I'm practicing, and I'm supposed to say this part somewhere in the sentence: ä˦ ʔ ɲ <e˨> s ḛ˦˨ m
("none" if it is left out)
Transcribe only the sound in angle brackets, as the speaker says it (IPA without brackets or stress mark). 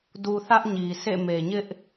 i˨